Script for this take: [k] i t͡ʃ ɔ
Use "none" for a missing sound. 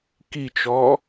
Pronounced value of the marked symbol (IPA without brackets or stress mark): k